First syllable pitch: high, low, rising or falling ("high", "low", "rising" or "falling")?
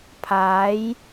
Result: rising